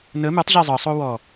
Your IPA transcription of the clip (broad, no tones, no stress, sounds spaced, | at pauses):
n ə m ɨ tˤ ʑ e zˤ ɤ sˤ o w ɔ